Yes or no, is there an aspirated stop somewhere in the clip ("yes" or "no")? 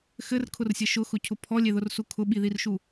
yes